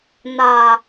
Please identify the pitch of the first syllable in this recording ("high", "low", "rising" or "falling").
low